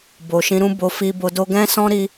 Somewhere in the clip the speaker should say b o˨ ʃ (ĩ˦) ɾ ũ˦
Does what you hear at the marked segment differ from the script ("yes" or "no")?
yes